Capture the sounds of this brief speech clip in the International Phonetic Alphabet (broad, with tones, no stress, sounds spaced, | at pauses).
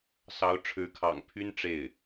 s ɑ˧˥ ʊ̯ ʈ͡ʂʰ ɻ̩˧˥ kʰ ɑ̰˨˩ ŋ pʰ y˥ n ʈ͡ʂ e˥˩ ɪ̯